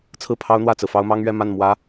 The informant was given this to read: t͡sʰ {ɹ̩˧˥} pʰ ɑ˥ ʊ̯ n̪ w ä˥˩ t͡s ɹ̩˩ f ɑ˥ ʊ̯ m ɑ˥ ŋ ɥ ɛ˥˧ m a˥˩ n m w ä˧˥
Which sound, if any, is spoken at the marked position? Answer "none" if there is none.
ɹ̩˥˩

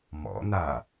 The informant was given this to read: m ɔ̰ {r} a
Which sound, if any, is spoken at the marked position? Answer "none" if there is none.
n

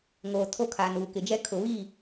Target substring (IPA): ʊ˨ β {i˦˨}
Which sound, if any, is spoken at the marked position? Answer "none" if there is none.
i˦˨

